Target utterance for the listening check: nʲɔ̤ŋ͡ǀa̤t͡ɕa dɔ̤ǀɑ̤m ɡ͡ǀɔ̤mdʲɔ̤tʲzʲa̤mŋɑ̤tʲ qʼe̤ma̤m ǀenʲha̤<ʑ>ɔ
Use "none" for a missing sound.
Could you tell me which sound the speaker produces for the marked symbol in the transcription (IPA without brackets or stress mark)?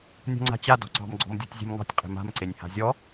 zʲ